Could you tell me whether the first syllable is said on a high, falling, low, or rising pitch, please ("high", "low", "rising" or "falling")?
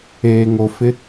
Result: low